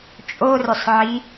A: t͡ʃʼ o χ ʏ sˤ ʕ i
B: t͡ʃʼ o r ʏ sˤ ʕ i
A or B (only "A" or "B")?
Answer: B